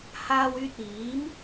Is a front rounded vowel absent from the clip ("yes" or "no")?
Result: no